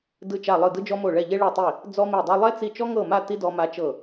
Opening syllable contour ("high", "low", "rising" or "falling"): falling